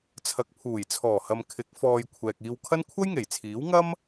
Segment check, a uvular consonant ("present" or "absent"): absent